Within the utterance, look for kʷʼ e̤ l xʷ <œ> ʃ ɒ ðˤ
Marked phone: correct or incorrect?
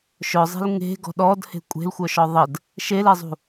correct